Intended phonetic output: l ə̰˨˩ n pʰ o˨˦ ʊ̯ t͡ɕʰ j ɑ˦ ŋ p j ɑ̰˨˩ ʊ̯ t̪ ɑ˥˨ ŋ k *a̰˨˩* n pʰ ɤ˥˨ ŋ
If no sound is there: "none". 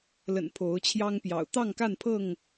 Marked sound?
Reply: a˥˨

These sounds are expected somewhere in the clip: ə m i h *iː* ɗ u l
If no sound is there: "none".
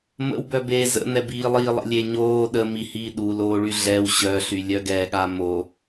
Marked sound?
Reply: iː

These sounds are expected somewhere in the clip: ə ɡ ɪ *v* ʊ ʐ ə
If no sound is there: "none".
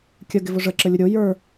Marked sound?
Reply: v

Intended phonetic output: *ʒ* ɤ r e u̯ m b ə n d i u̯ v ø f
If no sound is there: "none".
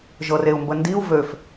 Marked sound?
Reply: ʒ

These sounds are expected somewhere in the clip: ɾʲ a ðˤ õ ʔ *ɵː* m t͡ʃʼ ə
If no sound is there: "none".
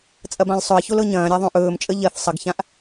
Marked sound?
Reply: ɵː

